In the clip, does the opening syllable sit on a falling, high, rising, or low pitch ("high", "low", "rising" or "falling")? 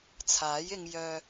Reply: rising